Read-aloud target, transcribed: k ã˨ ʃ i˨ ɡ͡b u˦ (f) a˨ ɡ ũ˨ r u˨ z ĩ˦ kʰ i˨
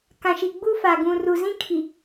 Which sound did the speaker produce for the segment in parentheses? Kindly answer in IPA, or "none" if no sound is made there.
f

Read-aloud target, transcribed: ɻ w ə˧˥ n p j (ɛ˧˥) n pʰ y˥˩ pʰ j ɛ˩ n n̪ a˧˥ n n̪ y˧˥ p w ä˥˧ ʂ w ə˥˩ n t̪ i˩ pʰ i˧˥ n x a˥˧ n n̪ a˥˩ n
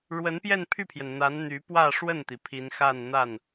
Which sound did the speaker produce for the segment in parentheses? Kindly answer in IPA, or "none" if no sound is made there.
ɛ˥˧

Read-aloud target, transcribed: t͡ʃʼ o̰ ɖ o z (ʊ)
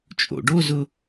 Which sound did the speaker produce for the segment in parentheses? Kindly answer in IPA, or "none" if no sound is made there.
ʊ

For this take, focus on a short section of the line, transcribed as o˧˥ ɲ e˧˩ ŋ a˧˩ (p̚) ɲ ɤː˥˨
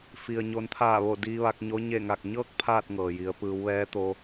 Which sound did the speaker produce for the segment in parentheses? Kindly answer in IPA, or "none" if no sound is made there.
k̚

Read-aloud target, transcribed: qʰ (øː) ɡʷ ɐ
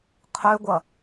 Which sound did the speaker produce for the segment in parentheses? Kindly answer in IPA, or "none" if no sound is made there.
ø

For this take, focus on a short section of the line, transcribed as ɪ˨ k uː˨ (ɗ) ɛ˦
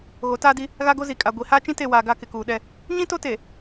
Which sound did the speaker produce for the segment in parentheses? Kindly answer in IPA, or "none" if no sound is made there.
ɗ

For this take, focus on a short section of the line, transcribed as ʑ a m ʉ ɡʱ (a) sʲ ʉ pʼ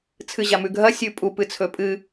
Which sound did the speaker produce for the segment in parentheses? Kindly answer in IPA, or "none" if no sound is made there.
ɐ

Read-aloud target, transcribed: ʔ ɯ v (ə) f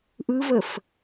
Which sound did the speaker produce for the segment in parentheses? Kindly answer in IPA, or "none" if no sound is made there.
ə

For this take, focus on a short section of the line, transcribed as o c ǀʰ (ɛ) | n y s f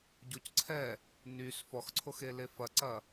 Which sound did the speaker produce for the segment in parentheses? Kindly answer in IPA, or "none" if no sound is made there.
ɛ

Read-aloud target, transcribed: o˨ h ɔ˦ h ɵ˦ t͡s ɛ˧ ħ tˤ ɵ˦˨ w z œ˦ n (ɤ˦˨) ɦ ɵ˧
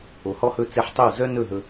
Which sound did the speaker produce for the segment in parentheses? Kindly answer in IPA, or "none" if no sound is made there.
ɵ˦˨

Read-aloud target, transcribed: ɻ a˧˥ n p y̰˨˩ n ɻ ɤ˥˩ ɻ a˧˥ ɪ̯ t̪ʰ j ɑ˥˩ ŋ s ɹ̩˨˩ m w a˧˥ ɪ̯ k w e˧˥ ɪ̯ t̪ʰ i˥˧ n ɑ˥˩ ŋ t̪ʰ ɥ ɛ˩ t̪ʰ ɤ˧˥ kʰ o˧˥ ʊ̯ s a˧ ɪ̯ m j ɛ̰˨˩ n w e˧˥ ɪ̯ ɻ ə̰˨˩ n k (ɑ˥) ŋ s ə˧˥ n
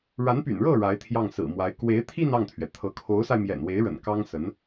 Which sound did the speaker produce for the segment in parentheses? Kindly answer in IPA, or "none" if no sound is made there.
ɑ˥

